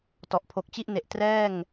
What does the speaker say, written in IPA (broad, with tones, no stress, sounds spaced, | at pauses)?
t ɔ˨˩ ʔ pʰ o˨˩ k̚ t͡ɕ i˥˩ ʔ n e˨˩ ʔ t r ɛː˥˩ ŋ